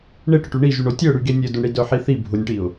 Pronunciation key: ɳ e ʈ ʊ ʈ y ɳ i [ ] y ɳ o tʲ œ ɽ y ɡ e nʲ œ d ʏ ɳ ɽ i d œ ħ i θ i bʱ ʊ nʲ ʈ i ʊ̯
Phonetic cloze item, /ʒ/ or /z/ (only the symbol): ʒ